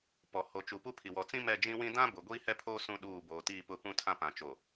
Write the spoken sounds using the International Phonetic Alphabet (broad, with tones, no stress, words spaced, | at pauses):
pɔ˨ ho˨t͡ʃu˨ pu˦pʰi˨ wɔ˨t͡sĩ˦ mɛ˦˨d͡ʒĩ˦wĩ˦ dã˦ bʊ˨ ɡʷiː˦hɛ˦pʰoː˦ sũ˦ɗuː˦˨ boː˨tiː˦˨pʊ˦˨ pũ˦tʰã˦ pã˨t͡ʃo˨